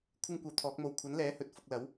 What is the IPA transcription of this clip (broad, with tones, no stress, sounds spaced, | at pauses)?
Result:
kʷʰ ɪ˥ ŋ kʷ ɐ˧ w t̪ʰ ɔː˨˥ k̚ m o˧ w kʷʰ ɐ˨˥ n l ɛː˨˥ h ɵ˨ t̚ f ʊ˧ k̚ l ɐ˨˥ w